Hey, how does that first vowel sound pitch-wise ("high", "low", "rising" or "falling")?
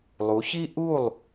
rising